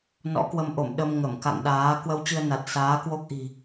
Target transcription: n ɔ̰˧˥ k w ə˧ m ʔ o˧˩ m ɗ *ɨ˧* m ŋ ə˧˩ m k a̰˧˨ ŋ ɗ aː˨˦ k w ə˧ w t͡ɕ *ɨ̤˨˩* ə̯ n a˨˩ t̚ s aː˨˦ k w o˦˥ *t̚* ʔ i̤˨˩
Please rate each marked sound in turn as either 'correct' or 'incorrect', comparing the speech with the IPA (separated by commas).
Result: incorrect, incorrect, incorrect